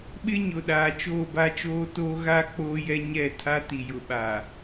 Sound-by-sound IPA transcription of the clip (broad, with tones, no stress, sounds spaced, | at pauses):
ɓ ɪ˦ ɲ ʊ˨ ɗ aː˨ t͡ʃ oː˦˨ b a˦ t͡ʃ oː˦ t oː˦ ɣ a˦ k͡p oː˦ j ɛ˦ ɲ ɛ˦˨ tʰ a˦ t i˨ j ʊ˨ ɓ aː˨